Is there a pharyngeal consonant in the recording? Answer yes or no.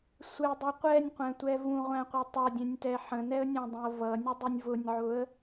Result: yes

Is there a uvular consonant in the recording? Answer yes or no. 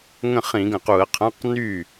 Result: yes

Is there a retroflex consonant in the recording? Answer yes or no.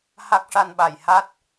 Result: yes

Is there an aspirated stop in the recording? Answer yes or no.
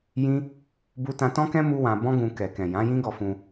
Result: no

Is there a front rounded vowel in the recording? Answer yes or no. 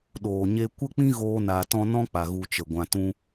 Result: no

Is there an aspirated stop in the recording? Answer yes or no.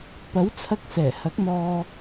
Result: yes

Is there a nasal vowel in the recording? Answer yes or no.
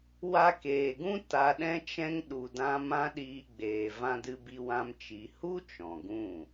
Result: yes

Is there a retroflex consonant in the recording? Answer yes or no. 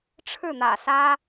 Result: yes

